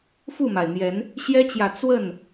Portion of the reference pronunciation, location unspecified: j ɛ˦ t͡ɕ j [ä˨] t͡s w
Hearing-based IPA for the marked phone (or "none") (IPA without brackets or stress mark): ä˨